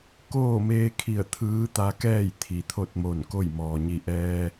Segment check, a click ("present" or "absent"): absent